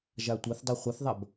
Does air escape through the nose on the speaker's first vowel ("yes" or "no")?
no